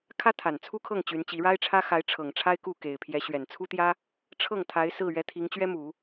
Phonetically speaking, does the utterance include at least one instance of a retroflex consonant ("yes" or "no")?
yes